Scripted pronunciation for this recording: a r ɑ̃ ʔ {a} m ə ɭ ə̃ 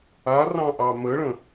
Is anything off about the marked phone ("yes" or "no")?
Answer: yes